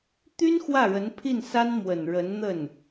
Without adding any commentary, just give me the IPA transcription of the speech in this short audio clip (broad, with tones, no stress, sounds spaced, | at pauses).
t̪ y˥ n x w ä˥˩ ɻ ə˧˥ n pʰ i˥˩ n s a˥ n m w ə˨˩ n ɻ ə˧˥ n n̪ ə˥˩ n